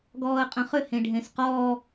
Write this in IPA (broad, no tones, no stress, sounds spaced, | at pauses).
ɡ ɔː ə̯ qʼ ə̃ χ ʏ h ẽ ɖʱ ẽ s q ɔː